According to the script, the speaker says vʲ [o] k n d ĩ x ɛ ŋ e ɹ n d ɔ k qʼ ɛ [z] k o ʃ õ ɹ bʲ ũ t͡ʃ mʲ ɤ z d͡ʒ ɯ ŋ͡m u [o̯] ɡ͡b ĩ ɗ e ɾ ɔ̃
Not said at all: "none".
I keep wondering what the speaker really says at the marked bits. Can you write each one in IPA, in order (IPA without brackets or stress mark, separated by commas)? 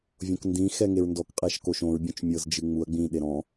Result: õ, ʃ, ɐ̯